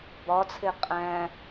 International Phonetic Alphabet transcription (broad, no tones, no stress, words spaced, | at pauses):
bɒt͡sʰe qʼæ̃